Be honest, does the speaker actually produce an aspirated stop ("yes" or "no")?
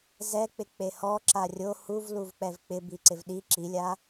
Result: no